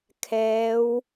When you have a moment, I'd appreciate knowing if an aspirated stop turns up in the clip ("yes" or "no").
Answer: yes